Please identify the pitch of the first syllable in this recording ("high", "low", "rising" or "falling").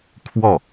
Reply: falling